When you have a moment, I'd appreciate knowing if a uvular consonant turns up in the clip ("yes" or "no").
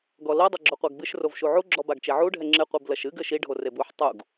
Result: yes